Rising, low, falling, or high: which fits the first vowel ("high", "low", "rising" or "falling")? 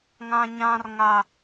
high